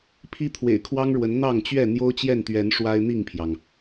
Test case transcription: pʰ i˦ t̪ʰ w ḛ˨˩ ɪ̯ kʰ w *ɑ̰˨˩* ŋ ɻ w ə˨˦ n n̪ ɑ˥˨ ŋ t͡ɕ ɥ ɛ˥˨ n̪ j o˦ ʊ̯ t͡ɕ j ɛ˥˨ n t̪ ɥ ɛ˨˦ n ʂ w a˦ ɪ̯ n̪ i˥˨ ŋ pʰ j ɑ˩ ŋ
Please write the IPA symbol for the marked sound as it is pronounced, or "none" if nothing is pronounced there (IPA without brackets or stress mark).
ɑ˦